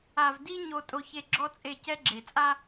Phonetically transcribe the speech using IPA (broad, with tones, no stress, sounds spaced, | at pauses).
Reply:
a˨ v d i˦ ɲ o˨ tʼ o˨ ç e˨ ɡ͡ǁ ɔ˦ t͡sʼ e˦˨ c ɛ˦ ɡ͡ǁ e˨ t͡sʼ a˦